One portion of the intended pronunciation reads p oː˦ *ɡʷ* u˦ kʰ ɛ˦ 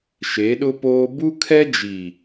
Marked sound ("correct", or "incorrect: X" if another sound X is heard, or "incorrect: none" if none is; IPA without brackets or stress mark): incorrect: b